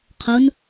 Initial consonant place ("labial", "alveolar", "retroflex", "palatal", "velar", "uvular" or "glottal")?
uvular